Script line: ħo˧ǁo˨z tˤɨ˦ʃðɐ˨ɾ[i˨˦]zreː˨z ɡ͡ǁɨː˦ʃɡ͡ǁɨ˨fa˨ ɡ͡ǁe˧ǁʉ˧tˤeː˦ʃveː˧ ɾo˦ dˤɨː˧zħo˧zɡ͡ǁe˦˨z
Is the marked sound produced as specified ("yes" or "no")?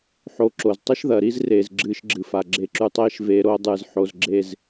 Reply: no